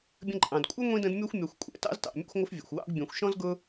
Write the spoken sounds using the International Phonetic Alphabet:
bʲə̃˦ǃʼɑ̃˩d kʷʼʌ˥ ŋʷĩ˥də̃˦dmʲɔ˥xʷ mʲɑ˨xʷkʷʼɛ̰˩ tɑ̰˥ztɑ̰˩ mʲɑ̰˥xʷŋʷə˥fvʲɛ̰˩xʷwɑ̰˥ɡ bʲɛ̃˨xʷ ʃɔ̃˥zɡʊ˦

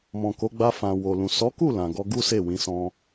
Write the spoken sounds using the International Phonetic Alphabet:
mɔ̃˨ko˨˦ ɡ͡ba˧fã˨wo˨lũ˨ sɔ˨˦ku˦˨ lã˨ ɡɔ˧ɡu˦ se˦˨wĩ˨˦ sɔ̃˧

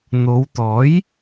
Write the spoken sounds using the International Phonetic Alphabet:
n̪o˨˧wt̪ɔː˨˥j

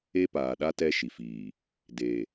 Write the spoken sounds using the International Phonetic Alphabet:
e˦paː˨ɗa˦ tɛ˦ʃi˨fiː˨ | de˨

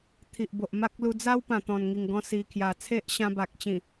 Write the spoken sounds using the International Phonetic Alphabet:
t̪ʰi˨ʔbo˨ʔ ma˦k̚lu˧ d͡za˦wpã˨˩ t̪ɔ̃˨˩nŋi˨˩ŋɡɔ̃˧ si˨˩kʰja˨˩ t͡sʰe˦ʔɕã˧ ba˨k̚t͡ɕĩ˨˩

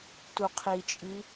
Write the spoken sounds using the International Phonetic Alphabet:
tuqʰit͡ʃʼi

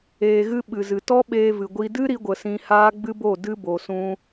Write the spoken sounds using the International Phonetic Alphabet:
eː˧ɣɨ˦ ɓɨ˨zɨ˨ tɔ˦ɓeː˧vɨ˨ɡʷi˧ dɨ˦ɾi˧ɡʷə˨ sĩ˧haː˦ɡ͡bɨ˦bo˦˨ dɨ˦bo˨sũ˧

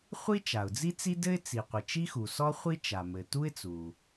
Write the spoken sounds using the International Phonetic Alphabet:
χʷi˥ t͡ʃa˩ʊ̯d͡zi˥t͡si˥dɘ˥ɪ̯ t͡si˩qʷɘ˩ t͡ʃi˥xu˩sɔ˥ χʷi˥ t͡ʃa˩mɘ˩ tu˥ɪ̯t͡su˩

